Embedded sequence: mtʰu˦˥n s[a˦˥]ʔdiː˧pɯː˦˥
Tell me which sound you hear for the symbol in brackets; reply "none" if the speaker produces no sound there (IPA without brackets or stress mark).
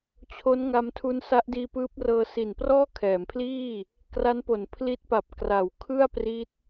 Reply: a˦˥